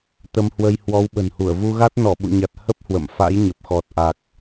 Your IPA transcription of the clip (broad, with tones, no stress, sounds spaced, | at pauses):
t̪ ə˧ m h w ə˧ j h w ɔ˨˦ w ɓ ə̤˨˩ n h u˧˩ ə̯ v u˧ ɣ a˦˥ t̚ n ɔ˧˩ ɓ ṵ˧˨ ɲ a˨˩ t̚ h ə˦˥ p̚ h w ə̰˧˨ m f a̰˧˥ j ɲ ə˨˩ p̚ x ɔ˨˩ t̚ ʔ a˨˩ k̚